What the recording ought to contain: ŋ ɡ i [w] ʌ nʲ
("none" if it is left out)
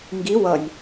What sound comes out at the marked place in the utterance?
w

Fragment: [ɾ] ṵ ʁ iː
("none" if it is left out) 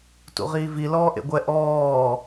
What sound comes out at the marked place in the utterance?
t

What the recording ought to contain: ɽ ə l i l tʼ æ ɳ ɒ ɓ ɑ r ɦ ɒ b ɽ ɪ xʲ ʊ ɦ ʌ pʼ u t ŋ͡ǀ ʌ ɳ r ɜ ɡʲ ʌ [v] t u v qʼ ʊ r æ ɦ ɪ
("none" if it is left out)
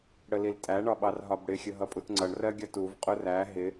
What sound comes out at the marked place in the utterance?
none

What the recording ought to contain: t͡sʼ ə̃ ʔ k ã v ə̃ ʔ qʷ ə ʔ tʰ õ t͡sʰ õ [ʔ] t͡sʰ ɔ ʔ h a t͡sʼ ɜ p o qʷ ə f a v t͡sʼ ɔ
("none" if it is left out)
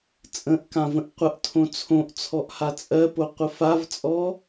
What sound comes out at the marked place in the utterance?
ʔ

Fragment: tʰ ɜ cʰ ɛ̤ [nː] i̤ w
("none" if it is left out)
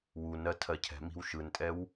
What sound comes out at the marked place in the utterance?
m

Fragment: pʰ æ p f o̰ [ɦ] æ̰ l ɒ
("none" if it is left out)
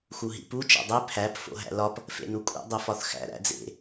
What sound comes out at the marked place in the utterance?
ɦ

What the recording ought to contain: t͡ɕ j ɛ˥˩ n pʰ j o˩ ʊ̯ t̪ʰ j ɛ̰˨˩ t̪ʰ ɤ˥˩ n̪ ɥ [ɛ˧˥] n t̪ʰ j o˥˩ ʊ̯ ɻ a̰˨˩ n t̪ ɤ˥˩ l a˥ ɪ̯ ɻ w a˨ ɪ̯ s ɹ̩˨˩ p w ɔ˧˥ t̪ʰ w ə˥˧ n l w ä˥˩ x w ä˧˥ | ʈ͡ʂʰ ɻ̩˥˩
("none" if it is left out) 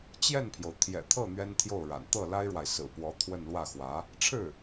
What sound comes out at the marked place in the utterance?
ɛ˥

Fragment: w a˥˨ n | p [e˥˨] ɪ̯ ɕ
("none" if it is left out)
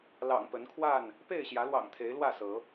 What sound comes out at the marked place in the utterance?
e˥˨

